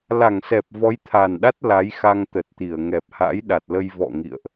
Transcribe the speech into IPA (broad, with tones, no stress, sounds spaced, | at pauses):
l a˧˩ ŋ s ɛ˨˩ p̚ v ɔ˨˦ j t̪ʰ aː˨˩ n ɗ a˦˥ t̚ l a˨˦ j x a˧ ŋ t̪ ə˨˩ t̚ t̪ i˧˩ ə̯ ŋ ɛ˨˩ p̚ h a̰˧˥ j ɗ a˨˩ t̚ l ə˧ j v ɔ̰˧˨ ŋ ḭ˧˨ ə̯ ʔ